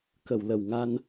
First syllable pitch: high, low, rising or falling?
low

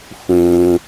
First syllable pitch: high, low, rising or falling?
low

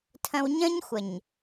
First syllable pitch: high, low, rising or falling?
high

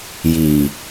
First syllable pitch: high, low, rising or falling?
low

